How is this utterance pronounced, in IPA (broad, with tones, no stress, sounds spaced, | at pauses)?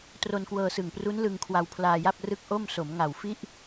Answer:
t r o˧ n k w ɤː˧ s ɯ˨˩ ŋ p r u˦˥ n l ɯ˧ ŋ kʰ w a˧ w pʰ l aː˧ j a˥˩ p̚ r ɯ˥˩ k̚ ʔ o˥˩ m s o˩˦ m ŋ a˨˩ w f i˥˩ ʔ